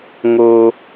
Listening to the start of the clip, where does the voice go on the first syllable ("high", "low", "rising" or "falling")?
high